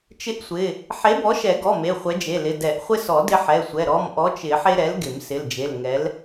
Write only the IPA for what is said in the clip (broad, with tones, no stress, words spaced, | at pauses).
t͡ʃɪ˦ʔsʷɪ˩˧˩ | ħe˨˥bɔ˨˥ʃɛ˨˩˦ɡɔ˩˧˩ me˩˧˩χʷɛ˨˥d͡ʒe˩˧˩lɪ˩˧˩ dɛ˨˩˦ʔχʷɪ˦sɔ˨˩˦ dɪ˦ħɛ˩˧˩sʷɛ˩˧˩ ɾɔ˩˧˩mʔɔ˨˥t͡ʃɪ˨˩˦ ħe˦ɾɛ˨˥lɡɪ˨˩˦m sɪ˩˧˩ld͡ʒe˩˧˩l ŋɛ˨˥l